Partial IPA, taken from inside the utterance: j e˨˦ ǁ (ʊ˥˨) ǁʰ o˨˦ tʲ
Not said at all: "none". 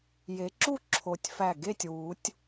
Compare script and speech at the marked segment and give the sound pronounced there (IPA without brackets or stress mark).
u˥˨